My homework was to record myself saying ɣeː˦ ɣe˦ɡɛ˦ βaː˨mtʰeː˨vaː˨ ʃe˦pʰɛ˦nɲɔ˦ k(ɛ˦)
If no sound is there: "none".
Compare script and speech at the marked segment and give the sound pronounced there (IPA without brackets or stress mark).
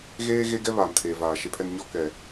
ɛ˨